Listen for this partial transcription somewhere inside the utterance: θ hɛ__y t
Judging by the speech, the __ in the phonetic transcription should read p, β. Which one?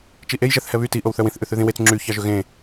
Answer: β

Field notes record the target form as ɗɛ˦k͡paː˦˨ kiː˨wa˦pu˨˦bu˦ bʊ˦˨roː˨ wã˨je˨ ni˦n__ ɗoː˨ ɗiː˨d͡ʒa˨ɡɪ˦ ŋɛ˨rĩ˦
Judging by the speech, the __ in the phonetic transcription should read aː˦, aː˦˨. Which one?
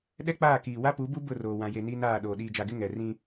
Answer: aː˦˨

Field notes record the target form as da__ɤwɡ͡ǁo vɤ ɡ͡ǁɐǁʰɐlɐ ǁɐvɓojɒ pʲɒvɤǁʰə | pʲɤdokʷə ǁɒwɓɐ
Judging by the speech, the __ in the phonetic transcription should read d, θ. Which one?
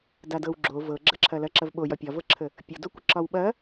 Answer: d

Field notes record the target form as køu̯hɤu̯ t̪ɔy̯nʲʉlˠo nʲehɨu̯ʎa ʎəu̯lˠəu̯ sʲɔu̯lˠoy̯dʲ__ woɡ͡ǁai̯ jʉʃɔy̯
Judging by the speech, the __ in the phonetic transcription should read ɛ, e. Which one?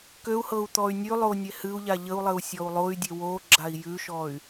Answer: e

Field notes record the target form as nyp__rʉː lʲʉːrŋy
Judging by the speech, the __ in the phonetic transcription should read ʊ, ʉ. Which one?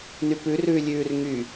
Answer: ʉ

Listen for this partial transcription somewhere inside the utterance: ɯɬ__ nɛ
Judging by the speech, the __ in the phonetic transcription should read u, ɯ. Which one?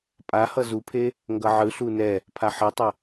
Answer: u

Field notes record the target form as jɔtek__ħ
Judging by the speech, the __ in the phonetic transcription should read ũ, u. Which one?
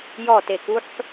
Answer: u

